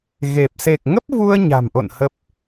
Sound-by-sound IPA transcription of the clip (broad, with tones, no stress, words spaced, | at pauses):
ɣe˨˩p̚ se˨˩k̚ŋə˦˥p̚vu˧ə̯ ɲa̤˨˩mʔo̰˧˨n hə˦˥p̚